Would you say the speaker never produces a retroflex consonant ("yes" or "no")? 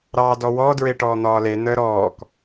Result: no